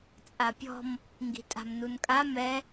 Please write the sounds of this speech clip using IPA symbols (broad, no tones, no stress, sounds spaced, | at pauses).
t͡sʼ a pʲ ɔ̤ m | ŋ ɡ i̤ tʼ a̤ m n u n kʼ a m ɛ